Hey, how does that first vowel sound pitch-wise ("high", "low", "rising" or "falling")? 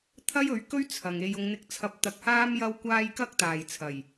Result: high